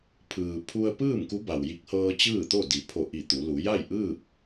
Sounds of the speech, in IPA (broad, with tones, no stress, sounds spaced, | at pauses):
pʰ ɯː˩ pʰ u˧ ə̯ p ɯː˥˨ m k u˧˥ b a˩ w j i˧˥ k̚ h ɤː˧ t͡ɕ ɯː˥˨ t̪ o˥˨ d i˩˧ pʰ o˧˩ ʔ i˧˩ t̪ u˩˧ l u˩˧ j a˥˨ j ʔ ɯː˥˨ p̚